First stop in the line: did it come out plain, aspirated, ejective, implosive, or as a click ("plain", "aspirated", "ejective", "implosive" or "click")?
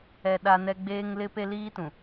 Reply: implosive